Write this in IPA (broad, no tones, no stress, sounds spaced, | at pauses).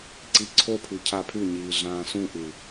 ǀ i ǀʰ o pʰ ʉ cʰ a pʰ ʉ ɲ iː ɮ ãː s ũ ʔ ʉ